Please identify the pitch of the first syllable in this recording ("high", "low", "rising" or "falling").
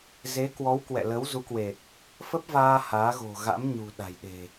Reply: rising